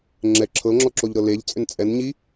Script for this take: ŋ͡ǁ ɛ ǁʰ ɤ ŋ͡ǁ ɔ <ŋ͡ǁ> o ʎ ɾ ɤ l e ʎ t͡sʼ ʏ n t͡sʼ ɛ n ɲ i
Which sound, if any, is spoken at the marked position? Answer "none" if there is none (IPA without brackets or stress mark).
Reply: ǁ